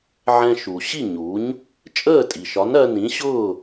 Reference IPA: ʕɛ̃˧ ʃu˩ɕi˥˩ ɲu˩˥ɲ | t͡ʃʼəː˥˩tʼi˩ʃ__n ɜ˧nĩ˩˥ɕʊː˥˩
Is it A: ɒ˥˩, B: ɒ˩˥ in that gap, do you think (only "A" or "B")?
B